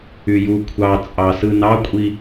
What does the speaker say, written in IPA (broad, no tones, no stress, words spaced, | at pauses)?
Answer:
yju kʷʰɑ t͡sʼɑsɯnɑkʷʼi